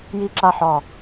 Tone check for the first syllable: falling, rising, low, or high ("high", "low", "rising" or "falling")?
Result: high